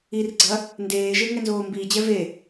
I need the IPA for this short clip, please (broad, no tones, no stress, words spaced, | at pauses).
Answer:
irɡ͡ǀɐ | ndeːʒe ŋɛnzoːmbiːd͡ʑɛ ve